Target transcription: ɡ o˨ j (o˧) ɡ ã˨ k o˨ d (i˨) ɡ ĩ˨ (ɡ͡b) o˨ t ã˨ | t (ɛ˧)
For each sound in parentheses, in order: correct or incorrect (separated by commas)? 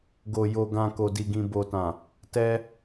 incorrect, correct, incorrect, correct